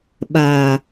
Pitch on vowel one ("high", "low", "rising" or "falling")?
low